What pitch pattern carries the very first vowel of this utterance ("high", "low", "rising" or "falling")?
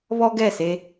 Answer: high